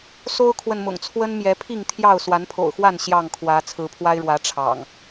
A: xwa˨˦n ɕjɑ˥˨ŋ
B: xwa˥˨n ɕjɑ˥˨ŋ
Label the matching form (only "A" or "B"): B